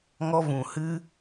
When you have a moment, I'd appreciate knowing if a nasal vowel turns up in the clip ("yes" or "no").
yes